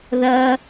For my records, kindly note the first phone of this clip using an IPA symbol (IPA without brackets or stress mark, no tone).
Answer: ð